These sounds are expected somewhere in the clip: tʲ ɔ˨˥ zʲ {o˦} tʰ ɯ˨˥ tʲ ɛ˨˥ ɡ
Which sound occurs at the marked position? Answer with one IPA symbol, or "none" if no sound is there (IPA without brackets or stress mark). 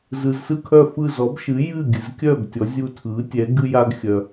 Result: u˦